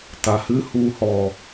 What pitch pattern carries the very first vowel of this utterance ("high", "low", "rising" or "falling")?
low